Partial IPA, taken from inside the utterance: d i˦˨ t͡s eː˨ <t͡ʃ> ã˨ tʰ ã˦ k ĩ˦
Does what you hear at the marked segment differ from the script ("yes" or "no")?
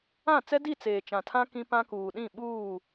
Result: no